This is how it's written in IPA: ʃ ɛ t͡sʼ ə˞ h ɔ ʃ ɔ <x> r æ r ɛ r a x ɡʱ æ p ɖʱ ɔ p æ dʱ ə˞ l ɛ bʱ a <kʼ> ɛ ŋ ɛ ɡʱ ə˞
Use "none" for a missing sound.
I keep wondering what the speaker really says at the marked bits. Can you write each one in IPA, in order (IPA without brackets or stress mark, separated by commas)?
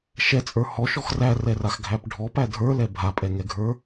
x, pʼ